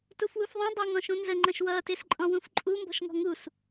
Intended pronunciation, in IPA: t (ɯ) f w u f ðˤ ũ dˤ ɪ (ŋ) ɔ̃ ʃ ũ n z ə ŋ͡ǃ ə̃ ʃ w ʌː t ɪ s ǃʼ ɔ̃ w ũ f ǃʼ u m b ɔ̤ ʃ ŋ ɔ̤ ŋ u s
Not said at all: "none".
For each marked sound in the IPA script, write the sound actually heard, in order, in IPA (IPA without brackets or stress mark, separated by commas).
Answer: u, ŋ